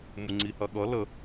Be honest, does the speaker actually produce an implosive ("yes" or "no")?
yes